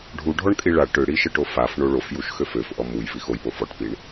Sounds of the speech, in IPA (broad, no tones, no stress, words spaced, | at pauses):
ɖʱuɖʱɔɳ kʼiɭa ʈøɽiʃɜʈo faf ɳoɭofjuʃ xøføfʔɔ muj vixojpo fɔʈpiɳ